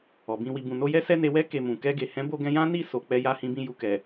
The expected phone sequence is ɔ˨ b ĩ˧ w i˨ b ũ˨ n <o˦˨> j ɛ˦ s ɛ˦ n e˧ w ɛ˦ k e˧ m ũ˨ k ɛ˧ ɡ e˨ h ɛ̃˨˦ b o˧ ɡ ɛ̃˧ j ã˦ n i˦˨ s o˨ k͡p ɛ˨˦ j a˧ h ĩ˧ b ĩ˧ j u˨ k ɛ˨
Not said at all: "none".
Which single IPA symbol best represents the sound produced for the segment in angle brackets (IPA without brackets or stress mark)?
o˧